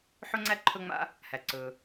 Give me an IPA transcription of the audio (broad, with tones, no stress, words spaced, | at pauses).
ħɵ˥ŋ͡ǀæ˥ ǃʰɵ˥ŋ͡ma̰˥ | hæ˩ǀɵː˩